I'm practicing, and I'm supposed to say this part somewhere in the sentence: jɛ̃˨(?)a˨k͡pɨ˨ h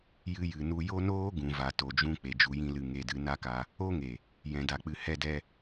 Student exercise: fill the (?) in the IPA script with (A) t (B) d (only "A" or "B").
B